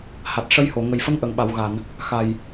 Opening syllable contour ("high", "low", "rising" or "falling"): low